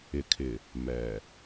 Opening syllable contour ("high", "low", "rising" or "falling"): low